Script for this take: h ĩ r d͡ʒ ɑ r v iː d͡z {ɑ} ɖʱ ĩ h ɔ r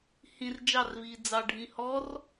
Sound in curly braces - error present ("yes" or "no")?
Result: no